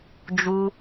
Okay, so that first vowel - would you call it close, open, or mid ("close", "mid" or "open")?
close